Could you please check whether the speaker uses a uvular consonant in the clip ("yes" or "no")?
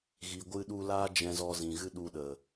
no